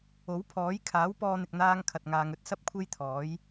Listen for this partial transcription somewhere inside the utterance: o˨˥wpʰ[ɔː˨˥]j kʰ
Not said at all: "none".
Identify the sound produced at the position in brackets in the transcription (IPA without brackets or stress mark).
ɔː˨˥